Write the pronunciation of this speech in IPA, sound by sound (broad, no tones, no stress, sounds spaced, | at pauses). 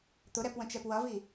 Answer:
t̪ ʊ ɾ ɛ p w ə̃ t͡ʃ ɛ p w ʌ v i